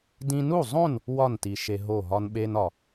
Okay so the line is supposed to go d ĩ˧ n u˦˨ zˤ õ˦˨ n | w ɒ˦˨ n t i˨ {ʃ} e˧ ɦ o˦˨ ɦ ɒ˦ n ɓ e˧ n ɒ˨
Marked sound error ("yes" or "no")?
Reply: no